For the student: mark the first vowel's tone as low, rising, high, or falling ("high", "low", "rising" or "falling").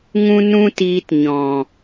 high